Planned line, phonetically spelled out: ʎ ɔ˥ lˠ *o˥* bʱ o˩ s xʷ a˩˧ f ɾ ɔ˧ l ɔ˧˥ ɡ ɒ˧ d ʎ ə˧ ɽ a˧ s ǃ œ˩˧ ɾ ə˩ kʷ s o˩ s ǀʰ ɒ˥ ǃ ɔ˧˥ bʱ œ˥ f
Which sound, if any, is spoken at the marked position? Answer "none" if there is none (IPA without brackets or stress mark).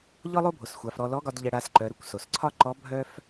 o˥